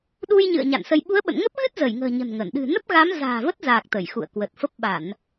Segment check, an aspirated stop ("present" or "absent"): absent